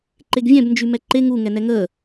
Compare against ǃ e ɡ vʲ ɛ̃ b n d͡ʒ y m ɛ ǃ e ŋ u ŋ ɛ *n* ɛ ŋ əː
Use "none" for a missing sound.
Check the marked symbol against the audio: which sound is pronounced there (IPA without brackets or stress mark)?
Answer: n